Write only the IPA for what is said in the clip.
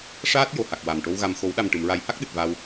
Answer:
ʂaː˦˥t̚ jo˨˩˨ha˨˩k̚ wa˨˩m ʈo˧wɣa˨˩m xo˨˩˦wɗa˨˩mʈɨ˨˩˨m ɹa˨˩˦jha˦˥k̚ɗɨ˨˩t̚ va˧w

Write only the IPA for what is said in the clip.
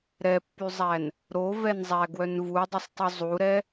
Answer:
ɾɛpːyzˤæn | ɾovɛnzˤæɡwœn vudˤosˤtˤy zˤuɾɛ

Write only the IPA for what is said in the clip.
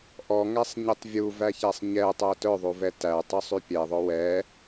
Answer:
ʔɔŋæsˤɲitˤ vʲuvæçæsˤ ɲɛtˤœ tœðˤuvɛ tætˤysˤy pʲɛðˤɵ wɛ

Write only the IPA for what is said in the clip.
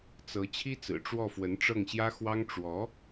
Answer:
t͡sɤ˧˥ t͡ɕʰi˥t͡sɹ̩˨˩ ʈ͡ʂwɔ˥˩fwə˧˥nʈ͡ʂɤ˥˩ŋɕjä˥ xwɑ˥ŋ ʈ͡ʂwɔ˧˥

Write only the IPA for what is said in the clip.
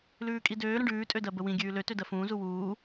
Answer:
lʉːkʼidøː ɾə̃ɖʉː tʼødɜbəwĩ ɡʲʉːlø tødɜfũː zuwuː

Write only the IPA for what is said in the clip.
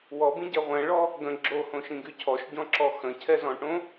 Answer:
wɔbĩɟɛ ʁʷɛ̃ɭɔ | ɡə̃ ɡ͡ǁohõʃĩɡy cʰɔʃɟɔ̃ǁɔ xə̃cʰɛzɔ̃ʈõ

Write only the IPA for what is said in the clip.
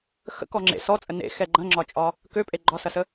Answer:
xə̰kɔ ŋ͡ǁḛ sɔt͡sʼə nḛxɛ ɡ͡ǃɐ̃ŋ͡ǁɒt͡ʃʼɒ | køpʼe ɡ͡ǃɒsɐsə

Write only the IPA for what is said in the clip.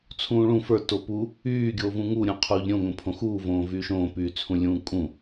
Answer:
t͡sʰũːɭũ fə˞ topu | yː ɡʲoːvũŋu ɾʲũqʰuːʎɾʲõ ŋõpʰõxuː võːvyːʃõː pyːt͡sʰũlʲũːkʼũ

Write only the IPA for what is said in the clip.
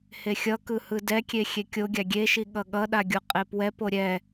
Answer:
hexʲʌkɯ hɯdɛkʲe xʲekʲoɡʲa ɡʲeʃi ɠʌɠʌɗa ɡʲuqʼepwɛpo ɾʲɛ

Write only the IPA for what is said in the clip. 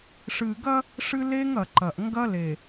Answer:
ʂɨ˨ɡɐ˦ | ʂɨ˦le˦ŋɐ˨ǃɐ˨ʔ ŋɡɐ˦le˨

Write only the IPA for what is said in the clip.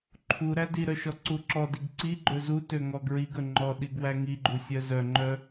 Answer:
ǃʰu ɾædiɾœ ʃɔǀuǁɔdiɡ ǀiɡ͡ǃɵ zutø ŋɔɡɹiɡɵ ŋ͡ǃɔ ɗiɡwæŋiɡ͡ǃu sʲœzœŋ͡ǃœ

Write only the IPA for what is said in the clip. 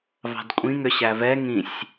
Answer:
vɑ̤dkʷʼĩ ŋʏɕævɛ ŋĩsʲ

